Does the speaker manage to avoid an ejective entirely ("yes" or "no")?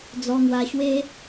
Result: yes